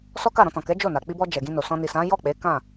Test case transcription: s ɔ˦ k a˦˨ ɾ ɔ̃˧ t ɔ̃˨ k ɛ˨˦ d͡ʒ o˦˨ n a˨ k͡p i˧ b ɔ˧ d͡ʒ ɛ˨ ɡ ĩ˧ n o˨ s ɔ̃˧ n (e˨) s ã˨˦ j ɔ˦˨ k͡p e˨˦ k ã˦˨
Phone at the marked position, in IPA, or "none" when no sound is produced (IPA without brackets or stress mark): i˨